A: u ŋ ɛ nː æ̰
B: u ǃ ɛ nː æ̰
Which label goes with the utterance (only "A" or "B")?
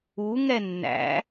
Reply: A